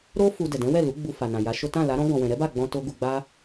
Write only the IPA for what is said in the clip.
ɾo˦ fu˧ dɛ˨ dɛ̃˨˦wɛ˦˨ lu˨˦ɡ͡bu˧fa˨nã˨ ja˨˦ʃo˦ tã˦˨la˨˦ɾɔ̃˦ ɡɔ̃˧wɛ̃˧ ɾɛ˦ba˦˨ɡ͡bɔ̃˧ to˦ ɡu˧ɡ͡ba˦

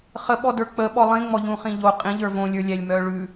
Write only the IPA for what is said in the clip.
χəɓɔ də˞k͡pə ɓɔlˠĩŋ͡mɔ ʎũχĩʎo qʼĩʎə˞ võlʲə˞lʲælʲ mœɭʉ

